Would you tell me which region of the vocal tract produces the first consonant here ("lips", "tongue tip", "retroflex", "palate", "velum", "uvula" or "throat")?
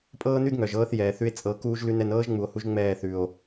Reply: lips